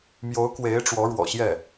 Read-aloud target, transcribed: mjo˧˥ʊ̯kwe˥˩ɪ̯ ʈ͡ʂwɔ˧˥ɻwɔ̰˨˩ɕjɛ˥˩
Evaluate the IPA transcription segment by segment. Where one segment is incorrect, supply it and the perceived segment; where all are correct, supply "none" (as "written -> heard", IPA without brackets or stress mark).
e˥˩ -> e˧˥